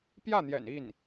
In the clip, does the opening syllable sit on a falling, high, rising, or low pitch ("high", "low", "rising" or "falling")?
falling